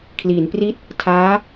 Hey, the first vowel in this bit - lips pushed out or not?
no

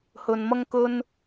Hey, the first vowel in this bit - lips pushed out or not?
yes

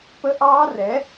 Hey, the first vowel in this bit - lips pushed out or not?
no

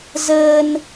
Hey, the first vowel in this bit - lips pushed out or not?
no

